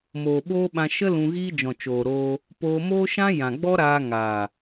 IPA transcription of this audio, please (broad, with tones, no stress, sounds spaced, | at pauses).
m oː˨ ɓ oː˦ ɓ ã˧ ʃ ə˦ l ũ˧ ɣ iː˦ d͡ʒ ɔ̃˨ t͡ʃ oː˨ ɾ oː˧ | p oː˧ m oː˦ ʃ ã˦ j ã˨ ɡ͡b ɔ˦ ɾ aː˧ ŋ aː˨